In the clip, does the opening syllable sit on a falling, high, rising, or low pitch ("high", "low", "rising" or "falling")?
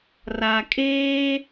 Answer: low